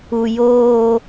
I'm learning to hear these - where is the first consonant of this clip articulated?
palate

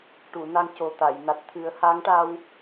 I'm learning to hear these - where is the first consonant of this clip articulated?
retroflex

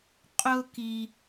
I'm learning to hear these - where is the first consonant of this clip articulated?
uvula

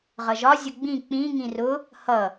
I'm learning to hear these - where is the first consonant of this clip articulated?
uvula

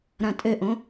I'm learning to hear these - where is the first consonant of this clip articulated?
tongue tip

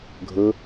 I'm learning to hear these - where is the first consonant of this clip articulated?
velum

